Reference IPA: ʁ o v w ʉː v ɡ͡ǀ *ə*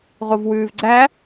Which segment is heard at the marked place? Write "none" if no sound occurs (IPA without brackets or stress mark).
æ